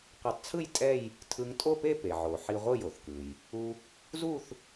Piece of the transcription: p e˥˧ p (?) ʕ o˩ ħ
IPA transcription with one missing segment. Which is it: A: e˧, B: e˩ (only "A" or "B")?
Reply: B